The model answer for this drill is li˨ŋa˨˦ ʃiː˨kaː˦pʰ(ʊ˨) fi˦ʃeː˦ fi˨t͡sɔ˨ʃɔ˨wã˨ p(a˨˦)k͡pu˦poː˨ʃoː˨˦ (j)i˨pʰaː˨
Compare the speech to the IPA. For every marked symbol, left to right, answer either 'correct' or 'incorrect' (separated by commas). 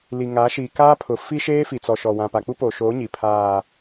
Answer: correct, incorrect, incorrect